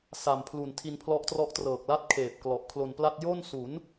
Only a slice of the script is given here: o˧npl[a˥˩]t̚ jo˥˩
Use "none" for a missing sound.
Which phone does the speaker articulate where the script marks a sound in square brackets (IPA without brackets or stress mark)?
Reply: a˥˩